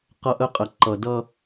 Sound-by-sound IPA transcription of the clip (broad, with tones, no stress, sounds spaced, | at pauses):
q ʌ˦ ʔ ə˦ qʼ ə˨ ǃ ʌ˨ d ʌ˦